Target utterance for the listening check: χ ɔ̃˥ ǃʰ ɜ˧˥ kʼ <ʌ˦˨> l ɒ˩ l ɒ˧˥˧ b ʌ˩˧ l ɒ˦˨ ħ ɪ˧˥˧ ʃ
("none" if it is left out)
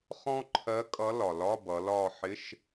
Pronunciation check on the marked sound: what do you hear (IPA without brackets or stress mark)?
ʌ˧˥